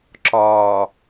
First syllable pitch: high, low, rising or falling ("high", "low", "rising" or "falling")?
low